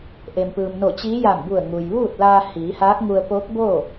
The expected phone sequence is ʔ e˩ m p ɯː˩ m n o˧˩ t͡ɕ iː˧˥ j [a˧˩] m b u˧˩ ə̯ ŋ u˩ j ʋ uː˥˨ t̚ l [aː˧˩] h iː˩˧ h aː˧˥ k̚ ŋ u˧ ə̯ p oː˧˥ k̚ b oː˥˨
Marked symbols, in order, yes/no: yes, no

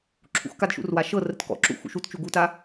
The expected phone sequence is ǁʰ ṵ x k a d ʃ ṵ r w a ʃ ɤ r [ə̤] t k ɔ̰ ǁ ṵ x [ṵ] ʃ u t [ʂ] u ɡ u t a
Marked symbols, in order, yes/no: no, yes, no

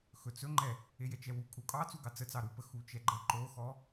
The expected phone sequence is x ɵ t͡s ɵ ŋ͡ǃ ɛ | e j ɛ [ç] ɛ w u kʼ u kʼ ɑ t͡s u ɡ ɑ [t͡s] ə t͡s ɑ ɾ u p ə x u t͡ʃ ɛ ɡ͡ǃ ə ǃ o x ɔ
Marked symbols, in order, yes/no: no, yes

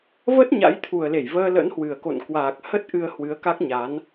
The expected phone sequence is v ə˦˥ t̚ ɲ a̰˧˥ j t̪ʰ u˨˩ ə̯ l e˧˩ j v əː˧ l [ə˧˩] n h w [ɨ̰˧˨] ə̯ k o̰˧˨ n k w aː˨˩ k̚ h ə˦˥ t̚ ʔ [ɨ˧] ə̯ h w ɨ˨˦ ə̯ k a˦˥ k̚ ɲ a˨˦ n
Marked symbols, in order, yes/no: no, no, yes

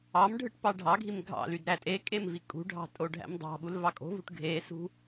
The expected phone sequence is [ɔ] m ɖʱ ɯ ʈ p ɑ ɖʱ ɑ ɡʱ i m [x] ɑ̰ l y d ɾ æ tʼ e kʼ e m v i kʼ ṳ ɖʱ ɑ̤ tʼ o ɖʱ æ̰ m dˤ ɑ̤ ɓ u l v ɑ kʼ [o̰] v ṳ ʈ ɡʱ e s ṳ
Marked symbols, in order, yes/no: no, no, no

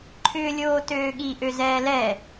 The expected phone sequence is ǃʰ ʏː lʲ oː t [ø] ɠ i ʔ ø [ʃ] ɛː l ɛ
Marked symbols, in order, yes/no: no, no

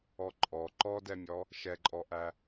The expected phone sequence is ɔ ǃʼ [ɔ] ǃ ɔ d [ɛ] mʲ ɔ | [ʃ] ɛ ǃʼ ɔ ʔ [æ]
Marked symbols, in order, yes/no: yes, yes, yes, yes

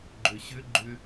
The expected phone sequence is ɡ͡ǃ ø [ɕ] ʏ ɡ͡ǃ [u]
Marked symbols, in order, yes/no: yes, no

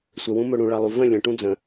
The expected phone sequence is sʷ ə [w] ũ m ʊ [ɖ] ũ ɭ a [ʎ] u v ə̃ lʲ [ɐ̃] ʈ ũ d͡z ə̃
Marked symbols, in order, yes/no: yes, no, no, no

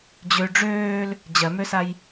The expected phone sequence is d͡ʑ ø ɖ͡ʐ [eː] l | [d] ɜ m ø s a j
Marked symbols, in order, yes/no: no, no

